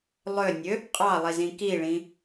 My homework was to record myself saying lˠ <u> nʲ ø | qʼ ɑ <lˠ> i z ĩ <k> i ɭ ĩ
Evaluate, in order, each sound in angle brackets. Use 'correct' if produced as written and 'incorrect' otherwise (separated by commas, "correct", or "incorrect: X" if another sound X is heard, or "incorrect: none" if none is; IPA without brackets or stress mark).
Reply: incorrect: ø, correct, correct